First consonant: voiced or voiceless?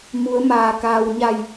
voiced